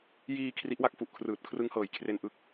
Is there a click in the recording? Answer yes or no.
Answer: no